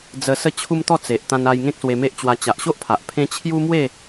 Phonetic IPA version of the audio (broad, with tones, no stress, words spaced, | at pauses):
d͡zə˧ sə˥˧t͡ɕʰu˦m t̪ɔ˥˧t͡se˨ʔ t̪ã˧na˧j ŋẽ˦k̚swe˧me˦ʔt͡ɕwa˧ t͡ɕa˨ʔɕo˦ʔpʰa˨ʔ pʰẽ˦ t͡ɕʰju˦mwe˥˧